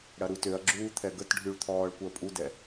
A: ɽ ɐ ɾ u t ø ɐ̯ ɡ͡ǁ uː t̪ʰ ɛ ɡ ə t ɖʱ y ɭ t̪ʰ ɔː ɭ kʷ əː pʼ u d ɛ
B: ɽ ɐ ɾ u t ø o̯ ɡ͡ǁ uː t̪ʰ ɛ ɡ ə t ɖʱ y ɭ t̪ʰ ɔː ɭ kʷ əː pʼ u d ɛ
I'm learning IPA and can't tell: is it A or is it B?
A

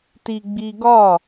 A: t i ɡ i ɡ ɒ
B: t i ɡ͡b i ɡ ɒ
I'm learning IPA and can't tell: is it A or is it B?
B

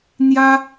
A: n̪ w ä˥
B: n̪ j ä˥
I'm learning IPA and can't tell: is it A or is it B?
B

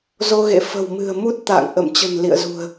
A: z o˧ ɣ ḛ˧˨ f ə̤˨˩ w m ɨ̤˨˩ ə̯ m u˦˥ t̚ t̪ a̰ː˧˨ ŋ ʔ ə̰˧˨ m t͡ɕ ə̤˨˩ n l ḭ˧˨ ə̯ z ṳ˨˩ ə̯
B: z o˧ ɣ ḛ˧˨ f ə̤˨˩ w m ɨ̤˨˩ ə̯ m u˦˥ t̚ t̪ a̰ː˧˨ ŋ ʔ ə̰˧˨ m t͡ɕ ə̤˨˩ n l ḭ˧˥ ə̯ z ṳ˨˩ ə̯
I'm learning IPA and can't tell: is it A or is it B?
A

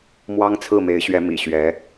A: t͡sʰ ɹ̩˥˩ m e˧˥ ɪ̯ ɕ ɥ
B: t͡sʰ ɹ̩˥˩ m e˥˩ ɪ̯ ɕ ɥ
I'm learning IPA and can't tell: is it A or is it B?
A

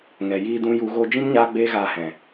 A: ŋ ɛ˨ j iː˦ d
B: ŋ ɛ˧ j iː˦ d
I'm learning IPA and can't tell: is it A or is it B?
A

